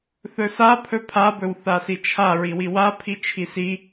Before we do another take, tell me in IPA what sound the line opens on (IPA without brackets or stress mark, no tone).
θ